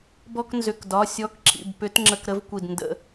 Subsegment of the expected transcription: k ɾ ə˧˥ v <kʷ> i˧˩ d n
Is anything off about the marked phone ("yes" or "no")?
no